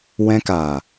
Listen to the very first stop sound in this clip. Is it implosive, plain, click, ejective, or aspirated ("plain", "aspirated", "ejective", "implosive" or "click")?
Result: plain